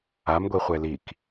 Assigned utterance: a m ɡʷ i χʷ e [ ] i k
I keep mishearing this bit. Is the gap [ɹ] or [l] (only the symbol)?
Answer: l